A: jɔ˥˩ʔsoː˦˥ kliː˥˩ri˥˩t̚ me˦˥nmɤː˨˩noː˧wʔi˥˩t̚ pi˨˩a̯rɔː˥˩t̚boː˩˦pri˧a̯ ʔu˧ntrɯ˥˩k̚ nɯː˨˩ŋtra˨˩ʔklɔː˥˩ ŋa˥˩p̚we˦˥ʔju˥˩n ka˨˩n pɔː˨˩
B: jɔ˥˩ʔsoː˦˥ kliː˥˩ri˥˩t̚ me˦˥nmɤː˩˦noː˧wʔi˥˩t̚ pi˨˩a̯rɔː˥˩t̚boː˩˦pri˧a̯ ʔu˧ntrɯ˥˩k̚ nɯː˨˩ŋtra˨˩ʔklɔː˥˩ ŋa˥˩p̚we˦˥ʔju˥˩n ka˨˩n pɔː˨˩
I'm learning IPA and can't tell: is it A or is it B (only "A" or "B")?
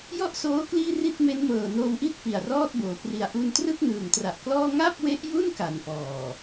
A